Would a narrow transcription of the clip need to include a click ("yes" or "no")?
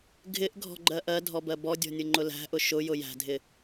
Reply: yes